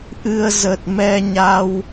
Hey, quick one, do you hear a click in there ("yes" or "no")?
no